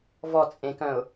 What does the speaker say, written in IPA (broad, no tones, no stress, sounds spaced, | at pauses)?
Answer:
v ɔ t͡sʼ ẽ k œ̃ ʊ̯